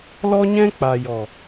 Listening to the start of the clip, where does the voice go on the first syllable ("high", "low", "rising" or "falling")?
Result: high